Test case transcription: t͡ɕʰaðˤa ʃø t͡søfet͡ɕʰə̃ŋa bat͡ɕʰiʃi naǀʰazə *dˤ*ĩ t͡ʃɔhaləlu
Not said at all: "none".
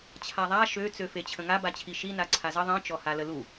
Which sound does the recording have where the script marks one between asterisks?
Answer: ðˤ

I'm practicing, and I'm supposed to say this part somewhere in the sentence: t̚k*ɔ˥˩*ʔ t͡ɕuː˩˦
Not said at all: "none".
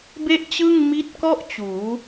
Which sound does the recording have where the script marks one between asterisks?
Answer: ɔ˥˩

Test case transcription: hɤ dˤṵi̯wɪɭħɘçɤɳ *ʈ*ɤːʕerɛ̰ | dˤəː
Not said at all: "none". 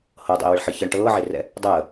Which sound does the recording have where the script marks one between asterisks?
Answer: ʈ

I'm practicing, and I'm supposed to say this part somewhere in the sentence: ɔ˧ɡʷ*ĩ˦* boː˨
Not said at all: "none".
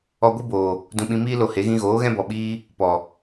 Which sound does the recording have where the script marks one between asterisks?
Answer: i˦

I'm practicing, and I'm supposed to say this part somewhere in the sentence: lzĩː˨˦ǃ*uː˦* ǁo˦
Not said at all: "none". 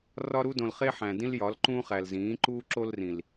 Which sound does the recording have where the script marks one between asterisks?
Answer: uː˦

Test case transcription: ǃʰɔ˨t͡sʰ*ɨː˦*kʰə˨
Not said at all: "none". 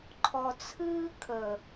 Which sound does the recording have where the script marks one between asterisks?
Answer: ɨː˦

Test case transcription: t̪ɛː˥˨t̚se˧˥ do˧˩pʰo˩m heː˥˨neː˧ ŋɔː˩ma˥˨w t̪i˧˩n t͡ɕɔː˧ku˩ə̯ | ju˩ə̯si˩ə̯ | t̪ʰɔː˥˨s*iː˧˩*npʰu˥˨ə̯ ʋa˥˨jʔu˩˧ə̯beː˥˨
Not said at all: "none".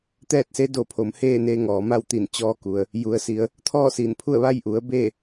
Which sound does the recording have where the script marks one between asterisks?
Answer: iː˧˩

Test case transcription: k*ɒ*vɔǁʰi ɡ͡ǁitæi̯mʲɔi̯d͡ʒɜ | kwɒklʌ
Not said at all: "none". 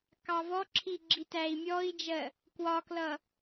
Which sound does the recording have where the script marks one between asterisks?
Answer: ɑ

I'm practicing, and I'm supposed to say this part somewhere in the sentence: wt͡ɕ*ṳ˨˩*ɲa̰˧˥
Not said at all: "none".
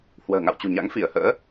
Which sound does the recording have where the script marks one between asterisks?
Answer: ṳ˨˩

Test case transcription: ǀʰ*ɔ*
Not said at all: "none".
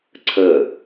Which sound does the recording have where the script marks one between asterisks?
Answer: ə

